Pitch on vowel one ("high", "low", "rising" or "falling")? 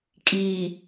low